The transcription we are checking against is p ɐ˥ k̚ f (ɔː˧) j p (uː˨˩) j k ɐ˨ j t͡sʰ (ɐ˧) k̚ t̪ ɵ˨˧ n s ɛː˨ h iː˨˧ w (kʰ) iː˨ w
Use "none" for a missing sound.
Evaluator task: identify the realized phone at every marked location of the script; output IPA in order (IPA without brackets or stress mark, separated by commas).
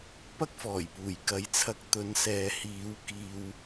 ɔː˨˩, uː˨˩, ɐ˧, k